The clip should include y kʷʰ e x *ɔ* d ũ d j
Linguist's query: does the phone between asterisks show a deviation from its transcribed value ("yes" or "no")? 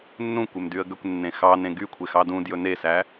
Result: yes